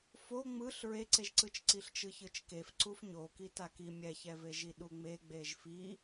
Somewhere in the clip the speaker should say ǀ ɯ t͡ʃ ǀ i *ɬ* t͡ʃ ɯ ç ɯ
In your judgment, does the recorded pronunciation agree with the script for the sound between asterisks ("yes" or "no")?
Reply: yes